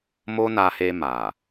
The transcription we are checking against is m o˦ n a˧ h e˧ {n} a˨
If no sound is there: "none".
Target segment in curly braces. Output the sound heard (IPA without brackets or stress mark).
m